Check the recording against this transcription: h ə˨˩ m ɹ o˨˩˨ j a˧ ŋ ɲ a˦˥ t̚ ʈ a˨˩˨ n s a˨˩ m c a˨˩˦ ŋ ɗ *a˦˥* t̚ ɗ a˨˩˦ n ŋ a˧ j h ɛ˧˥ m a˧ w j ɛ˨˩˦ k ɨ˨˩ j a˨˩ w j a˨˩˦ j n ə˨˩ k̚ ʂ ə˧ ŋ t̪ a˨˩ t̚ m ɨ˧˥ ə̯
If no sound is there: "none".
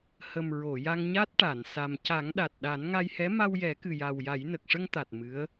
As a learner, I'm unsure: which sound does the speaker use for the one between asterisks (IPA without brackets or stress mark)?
a˨˩